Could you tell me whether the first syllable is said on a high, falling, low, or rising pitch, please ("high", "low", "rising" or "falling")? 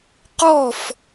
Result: falling